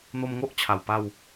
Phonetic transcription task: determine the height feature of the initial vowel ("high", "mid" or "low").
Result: mid